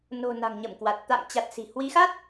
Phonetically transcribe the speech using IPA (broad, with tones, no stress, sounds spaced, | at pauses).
n o̤˨˩ n a̤˨˩ ŋ ɲ ə˧˩ m k w a˨˩ t̚ t̪ a̰ː˧˨ ŋ t͡ɕ a˨˩ t̚ s i̤˨˩ h w i˨˦ x a˦˥ t̚